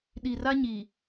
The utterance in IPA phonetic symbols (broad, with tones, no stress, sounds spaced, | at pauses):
ɗ i˨ r a˦ ɲ i˨